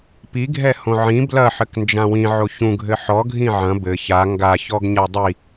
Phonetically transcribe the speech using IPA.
p i ɡʱ ɛ h õ ʕ ĩ b l ɐ ħ ɘ k n d͡ʒ ã w ĩ ʕ o ç ũ ɡʱ ɘ ħ ɔ ɡʱ ĩ ʕ ɐ̃ b ɘ ç a ŋ ɡ a ç ɔ ɡ ɲ a dˤ i

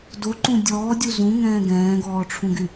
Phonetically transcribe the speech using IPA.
d o ǃ ũ dʲ ɔː dʲ u z ũ ŋ ɛ̃ː ɡ ɛ̃ː ɡ ɔː ʈ͡ʂʰ ũ ɡ y

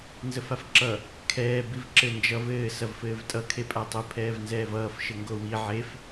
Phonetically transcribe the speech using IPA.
n z ə f a f ǁ ʌ | kʰ ɛː b i v ǁ ɘ n d͡ʒ ʌ v ɘː s ɐ v f ɘː v tʼ ʌ kʰ e pʼ a tˤ ə pʰ ɛː v n z ɛː v ʌː f ʃ ɘ ŋ ɡ o w i ʕ e f

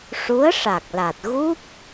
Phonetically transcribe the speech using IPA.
ʂ u˧˥ ə̯ ʂ a˨˩ k̚ l a˨˩ t̚ ɣ u˦˥ p̚

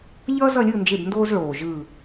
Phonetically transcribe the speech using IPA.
ʎ ʌː˦ z ʌ˦˨ lʲ ɯ˦˨ n d͡ʒ e˦˨ b n d oː˦ z ɭ oː˨˩ ʒ ɯː˦˨

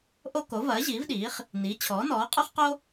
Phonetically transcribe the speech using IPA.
ʔ o˥ k o˩˥ v ɐː˩˥ ʑ iː˩˥ v ɗ iː˩˥ χ | n iː˩˥ t͡ɕʰ ɔː˩˥ n ɔː˩˥ qʼ o˥ χ q o˥

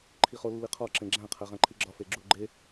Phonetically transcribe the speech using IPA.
ǃʰ i χ o lː i qʰ ɒ ǁ ẽ ɡ͡ǁ æ̃ qʰ æ ʁ æ̃ ǃʰ i ɡ͡ǁ ɒ f e ɡ͡ǁ u ɡ͡ǃ e

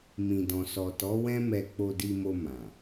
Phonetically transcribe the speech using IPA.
m ĩ˨ d ɔ̃˨ s ɔ˨ t ɔ˨˦ w ɛ̃˦ m ɛ˧ k͡p o˧ d i˧ m o˧ m ã˨

